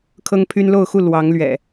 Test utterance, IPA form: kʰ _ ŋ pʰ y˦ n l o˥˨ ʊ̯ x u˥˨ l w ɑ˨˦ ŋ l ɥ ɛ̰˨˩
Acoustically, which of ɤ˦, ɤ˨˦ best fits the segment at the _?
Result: ɤ˦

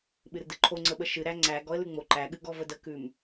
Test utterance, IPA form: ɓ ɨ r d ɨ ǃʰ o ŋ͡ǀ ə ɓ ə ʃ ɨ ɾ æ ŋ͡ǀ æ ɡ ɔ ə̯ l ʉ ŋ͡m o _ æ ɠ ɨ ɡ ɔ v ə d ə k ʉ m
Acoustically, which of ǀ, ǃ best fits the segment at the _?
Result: ǃ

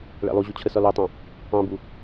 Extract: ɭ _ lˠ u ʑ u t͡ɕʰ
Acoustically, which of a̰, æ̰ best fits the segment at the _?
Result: æ̰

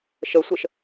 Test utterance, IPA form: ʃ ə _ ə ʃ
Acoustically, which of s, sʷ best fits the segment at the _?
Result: sʷ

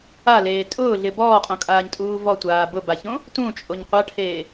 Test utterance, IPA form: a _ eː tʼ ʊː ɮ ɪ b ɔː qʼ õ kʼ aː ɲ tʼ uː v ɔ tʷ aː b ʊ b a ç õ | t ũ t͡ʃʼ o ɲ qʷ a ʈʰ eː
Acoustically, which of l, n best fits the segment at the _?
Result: l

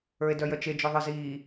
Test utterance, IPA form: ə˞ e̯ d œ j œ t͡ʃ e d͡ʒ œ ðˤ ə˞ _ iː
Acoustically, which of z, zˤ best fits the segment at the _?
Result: z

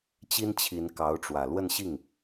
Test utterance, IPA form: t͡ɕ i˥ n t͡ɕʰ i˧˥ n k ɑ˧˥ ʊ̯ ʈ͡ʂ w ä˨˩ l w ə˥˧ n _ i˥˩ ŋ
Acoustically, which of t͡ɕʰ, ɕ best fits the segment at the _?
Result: ɕ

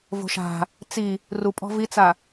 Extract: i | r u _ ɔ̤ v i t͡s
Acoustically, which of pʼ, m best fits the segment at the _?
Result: pʼ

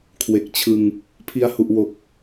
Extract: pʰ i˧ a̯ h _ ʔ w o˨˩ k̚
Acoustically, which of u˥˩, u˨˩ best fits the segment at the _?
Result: u˨˩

